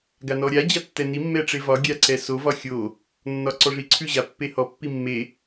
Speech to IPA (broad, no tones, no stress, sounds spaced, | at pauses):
ɡ a n ɔ ɾʲ a d͡ʑ a tː ɛ n i mː ɛ ʈ͡ʂ e v ɒ ɡʲ a ǀ ɛ s o v ɒ xʲ o | nː ɒ ǀ ɔ ʐ i ǀʰ ʉ ʑ a pː e h ɔ pː i mː e